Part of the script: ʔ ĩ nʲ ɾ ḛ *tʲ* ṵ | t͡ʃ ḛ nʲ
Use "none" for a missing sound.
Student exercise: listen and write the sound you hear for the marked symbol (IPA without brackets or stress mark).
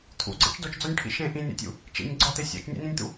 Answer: tʲ